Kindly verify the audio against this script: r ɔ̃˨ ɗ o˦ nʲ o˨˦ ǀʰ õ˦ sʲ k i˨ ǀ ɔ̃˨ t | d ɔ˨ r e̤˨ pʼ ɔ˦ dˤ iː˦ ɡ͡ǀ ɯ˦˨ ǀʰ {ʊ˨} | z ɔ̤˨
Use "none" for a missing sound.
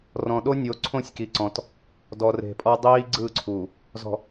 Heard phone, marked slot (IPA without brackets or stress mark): u˨